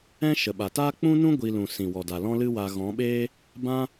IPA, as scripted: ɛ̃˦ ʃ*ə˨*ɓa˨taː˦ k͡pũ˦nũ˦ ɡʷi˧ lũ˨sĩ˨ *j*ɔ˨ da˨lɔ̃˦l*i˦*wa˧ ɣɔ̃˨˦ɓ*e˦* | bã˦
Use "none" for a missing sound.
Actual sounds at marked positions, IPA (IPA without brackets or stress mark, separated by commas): ə˨, w, ɨ˦, eː˦